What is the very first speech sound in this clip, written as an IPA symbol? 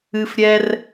ɨ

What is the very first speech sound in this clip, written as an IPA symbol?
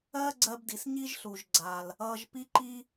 ɜː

